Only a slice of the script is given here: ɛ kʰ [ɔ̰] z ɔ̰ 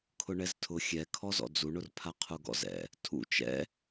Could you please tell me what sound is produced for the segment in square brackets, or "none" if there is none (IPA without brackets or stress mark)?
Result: ɔ